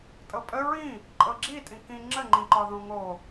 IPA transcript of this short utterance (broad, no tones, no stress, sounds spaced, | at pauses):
tʼ ɤ pʼ ə ɹ ĩ | ǃʼ ɤ ɡ͡ǁ i tʼ ĩ k ĩ ŋ͡ǁ ə ŋ͡ǃ ĩ ǃ ɒ ð õ ŋ o